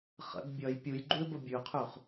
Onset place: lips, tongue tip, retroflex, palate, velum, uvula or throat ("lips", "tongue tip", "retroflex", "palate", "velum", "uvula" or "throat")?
uvula